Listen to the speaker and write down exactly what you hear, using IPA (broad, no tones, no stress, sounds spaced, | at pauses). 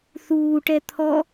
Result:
θ uː ʈ ɛ t̪ʰ ɔ